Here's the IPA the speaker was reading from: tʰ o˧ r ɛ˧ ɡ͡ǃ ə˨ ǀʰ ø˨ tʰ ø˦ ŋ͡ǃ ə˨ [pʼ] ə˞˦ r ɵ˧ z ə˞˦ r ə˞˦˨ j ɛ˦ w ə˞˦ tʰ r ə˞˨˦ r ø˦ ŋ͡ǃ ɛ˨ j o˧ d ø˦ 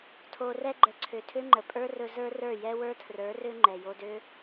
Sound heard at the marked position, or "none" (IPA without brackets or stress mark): pʼ